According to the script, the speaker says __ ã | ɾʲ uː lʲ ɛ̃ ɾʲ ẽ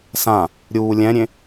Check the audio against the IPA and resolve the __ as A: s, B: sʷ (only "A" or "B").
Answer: A